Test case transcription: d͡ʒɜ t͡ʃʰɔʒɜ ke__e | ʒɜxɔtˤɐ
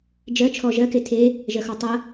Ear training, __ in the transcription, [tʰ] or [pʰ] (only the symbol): tʰ